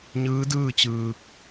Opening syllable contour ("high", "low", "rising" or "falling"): rising